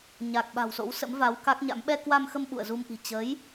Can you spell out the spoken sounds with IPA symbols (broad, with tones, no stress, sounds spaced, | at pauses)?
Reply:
ɲ a˨˩ k̚ ɓ a̤˨˩ w s o̰˧˥ w s ə̰˧˥ m v a˨˦ w k a˦˥ k̚ ɲ a̰˧˥ m ɓ ɛ˧ k w a˧ m x ə˧ m ɓ ṵ˧˨ ə̯ z u˧ m ʔ i̤˨˩ t͡ɕ ə˨˦ j